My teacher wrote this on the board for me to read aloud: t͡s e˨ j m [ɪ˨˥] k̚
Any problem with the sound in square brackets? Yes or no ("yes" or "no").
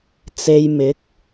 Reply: no